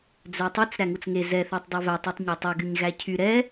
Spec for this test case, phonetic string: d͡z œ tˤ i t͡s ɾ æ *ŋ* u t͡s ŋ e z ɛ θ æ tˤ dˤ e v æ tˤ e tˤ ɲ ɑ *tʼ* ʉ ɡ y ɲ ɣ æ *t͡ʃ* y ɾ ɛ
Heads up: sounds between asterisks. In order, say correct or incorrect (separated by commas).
correct, incorrect, incorrect